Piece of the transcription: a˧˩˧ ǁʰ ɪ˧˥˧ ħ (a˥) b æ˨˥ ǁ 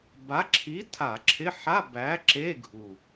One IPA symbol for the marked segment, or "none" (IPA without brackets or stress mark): a˧˥˧